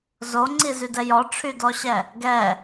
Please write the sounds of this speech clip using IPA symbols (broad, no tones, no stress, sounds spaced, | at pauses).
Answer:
z o ŋ͡ǀ i z y d ɛ j ɔ ʈ͡ʂʰ y d ɔ ɕ ɛ | ɡ ɛ